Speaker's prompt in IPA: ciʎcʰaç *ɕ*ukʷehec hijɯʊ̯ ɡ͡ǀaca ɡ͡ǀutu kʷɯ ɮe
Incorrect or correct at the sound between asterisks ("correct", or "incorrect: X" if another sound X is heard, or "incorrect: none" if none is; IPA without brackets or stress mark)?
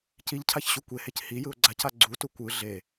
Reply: correct